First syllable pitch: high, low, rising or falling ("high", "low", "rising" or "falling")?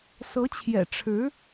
rising